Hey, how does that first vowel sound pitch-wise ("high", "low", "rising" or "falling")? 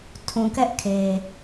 low